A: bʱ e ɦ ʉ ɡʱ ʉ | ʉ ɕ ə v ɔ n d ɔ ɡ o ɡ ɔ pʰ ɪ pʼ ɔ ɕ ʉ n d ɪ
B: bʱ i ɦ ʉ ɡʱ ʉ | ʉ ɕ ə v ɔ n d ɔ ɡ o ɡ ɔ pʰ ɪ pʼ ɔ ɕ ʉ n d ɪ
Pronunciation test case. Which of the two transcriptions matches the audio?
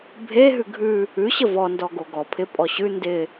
A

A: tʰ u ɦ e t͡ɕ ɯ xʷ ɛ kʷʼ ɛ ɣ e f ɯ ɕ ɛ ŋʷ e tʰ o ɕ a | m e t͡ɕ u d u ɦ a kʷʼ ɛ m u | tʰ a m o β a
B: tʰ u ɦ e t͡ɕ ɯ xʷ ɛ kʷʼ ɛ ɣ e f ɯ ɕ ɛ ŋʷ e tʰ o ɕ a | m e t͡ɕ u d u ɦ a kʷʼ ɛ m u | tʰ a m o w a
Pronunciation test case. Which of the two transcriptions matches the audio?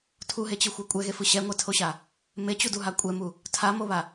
A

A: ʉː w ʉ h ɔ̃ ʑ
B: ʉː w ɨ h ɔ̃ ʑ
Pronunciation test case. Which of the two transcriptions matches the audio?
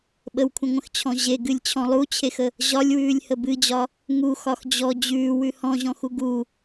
A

